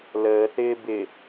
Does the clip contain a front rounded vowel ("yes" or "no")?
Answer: no